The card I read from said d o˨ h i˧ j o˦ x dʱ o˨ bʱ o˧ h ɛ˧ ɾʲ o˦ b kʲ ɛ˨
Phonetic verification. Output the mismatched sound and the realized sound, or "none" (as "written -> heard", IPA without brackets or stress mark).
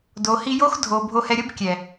none